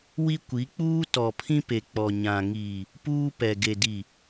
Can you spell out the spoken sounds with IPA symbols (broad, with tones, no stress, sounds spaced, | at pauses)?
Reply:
w i˦ kʷ i˨˦ k͡p uː˦ t ɔ˨ pʰ ĩ˦ p e˨ k͡p ɔ˨ ɲ ã˨ ŋ iː˨ | p uː˦ p ɛ˨ ɡ e˨ d i˨